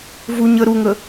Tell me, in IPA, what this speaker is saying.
v u ɲ ə ɾ u ŋ ə

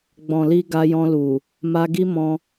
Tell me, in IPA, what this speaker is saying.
ɡ͡b ɔ̃˨ l i˧ ɡ a˧ j ɔ̃˧ l u˨ | m a˧ ɡ i˦ m ɔ̃˧

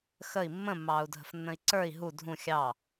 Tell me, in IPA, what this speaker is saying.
x ə i̯ mː ə̃ mː ɑː u̯ dʱ ə̤ f nː ə̃ i̯ ǀ ə˞ i̯ ɦ u dʱ ũ xʲ ɑ

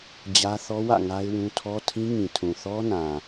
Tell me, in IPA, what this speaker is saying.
d͡ʑ ä˦ θ ɔ˦ w ä̰˦˨ ŋ a˦ ɪ̯ w ũ˦ tʰ ɔ˦ tʰ ĩ˦ ŋ ĩ˨ tʰ ũ˨ θ ɔ˦ n ã˨

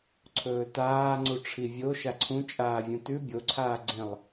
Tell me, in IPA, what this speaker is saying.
ǀʰ ɵː t aː ŋ͡ǀ u ʈ͡ʂʰ i vʲ o ʃ a ǀʰ ũ t͡ʃʼ aː vʲ ũ t ʉ bʲ o ǀʰ aː ɡ͡ǀ ẽ lˠ

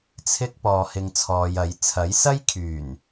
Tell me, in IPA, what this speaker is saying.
t͡sʰ ɪ˥ k̚ p ɔː˧ h ɪ˧ ŋ t͡sʰ ɔː˨˧ j ɐ˨˥ j t͡sʰ ɐ˨˥ j s ɐ˥ j kʰ yː˨˩ n

